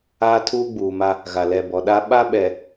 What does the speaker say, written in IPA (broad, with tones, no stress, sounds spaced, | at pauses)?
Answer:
aː˦ tʰ uː˦ ɡ͡b uː˨ m a˦ | ɣ a˨ l ɛ˨ b ɔ˨ ɗ a˦ ɓ a˦ ɓ ɛ˨